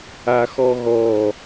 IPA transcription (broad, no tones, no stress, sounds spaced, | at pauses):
a x ɔ ɣ ɔ